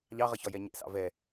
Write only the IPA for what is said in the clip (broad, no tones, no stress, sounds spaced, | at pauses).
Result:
ʎ ɑ ʁ ʌ ç ɒ j ɛ ɲ ɛ̰ s ɑ̰ v ɛ